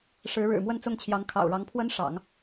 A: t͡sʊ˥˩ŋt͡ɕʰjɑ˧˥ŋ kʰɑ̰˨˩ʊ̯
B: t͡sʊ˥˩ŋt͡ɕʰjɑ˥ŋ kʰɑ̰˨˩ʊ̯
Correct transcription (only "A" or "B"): A